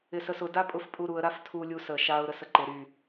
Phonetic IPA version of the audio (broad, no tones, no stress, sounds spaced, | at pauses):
ɪ s ə s ʊ d a pʼ ʊ f pʼ u ɾ u ə̯ ɾ a f tʰ u lʲ u s ə ʃ a ʊ̯ ɾ ə s ə ǃ ɪ ɾ y